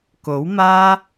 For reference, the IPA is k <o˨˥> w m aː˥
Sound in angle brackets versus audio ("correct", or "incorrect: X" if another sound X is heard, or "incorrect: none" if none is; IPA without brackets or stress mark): correct